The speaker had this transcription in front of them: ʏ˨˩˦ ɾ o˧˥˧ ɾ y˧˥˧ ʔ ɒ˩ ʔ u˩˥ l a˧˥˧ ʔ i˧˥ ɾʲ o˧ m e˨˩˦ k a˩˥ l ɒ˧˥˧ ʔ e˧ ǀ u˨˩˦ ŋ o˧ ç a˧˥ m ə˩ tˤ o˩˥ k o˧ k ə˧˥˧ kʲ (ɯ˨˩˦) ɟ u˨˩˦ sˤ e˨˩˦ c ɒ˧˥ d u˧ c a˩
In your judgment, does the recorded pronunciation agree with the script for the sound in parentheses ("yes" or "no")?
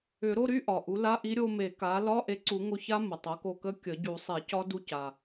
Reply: no